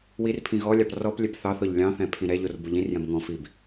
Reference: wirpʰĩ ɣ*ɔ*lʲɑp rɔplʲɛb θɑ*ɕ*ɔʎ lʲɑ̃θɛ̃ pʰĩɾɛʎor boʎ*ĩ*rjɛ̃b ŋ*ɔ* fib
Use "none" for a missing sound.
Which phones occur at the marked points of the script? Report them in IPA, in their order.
ɔ, θ, ĩ, ɔ̃

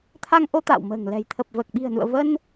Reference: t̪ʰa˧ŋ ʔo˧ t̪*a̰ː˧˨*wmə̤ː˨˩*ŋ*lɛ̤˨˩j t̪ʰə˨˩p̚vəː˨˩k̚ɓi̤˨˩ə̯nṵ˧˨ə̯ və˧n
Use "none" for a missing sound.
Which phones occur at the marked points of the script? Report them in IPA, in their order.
a̰ː˧˨, ŋ

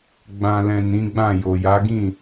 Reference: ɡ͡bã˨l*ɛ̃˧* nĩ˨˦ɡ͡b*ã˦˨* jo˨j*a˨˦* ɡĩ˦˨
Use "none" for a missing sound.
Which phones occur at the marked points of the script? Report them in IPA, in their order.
ɛ̃˨, ã˦˨, a˨˦

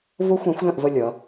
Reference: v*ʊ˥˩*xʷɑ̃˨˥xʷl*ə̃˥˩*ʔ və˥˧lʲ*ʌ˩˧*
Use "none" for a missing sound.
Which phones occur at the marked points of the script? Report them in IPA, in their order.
ʊ˦˥, ə̃˥˩, ʌ˩˧

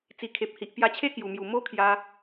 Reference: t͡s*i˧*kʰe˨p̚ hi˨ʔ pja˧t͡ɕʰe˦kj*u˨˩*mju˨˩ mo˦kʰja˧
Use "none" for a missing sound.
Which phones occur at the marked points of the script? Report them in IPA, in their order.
i˨˩, u˨˩

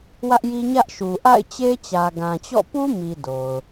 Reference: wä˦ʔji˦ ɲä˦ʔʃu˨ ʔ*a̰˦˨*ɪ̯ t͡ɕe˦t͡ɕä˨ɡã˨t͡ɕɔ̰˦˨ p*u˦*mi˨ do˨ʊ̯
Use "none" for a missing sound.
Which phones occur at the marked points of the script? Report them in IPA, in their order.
a̰˦˨, u˦

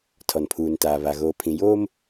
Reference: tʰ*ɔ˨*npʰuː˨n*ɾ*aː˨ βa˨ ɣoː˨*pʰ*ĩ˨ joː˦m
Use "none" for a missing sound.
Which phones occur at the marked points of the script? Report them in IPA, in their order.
ɔ˨, t, pʰ

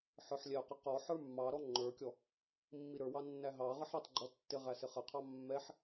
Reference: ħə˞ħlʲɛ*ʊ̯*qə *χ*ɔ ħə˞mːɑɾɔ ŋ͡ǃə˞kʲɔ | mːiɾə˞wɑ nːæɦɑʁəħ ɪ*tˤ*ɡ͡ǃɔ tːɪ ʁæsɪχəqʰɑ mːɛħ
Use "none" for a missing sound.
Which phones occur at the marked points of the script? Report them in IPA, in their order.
ʊ̯, q, tˤ

